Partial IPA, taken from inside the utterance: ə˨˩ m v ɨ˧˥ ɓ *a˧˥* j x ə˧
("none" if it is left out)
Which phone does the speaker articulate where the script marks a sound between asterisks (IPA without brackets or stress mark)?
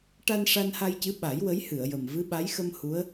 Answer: a˧˥